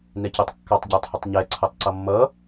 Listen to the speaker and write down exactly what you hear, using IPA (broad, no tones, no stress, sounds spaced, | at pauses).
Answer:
n ɛ c ɛ tˤ kː ɑ tˤ ɟ ə˞ tˤ h ʊ tˤ ɲ ɛ ǀʰ ʌ tˤ ǀ ʌ mː ʌ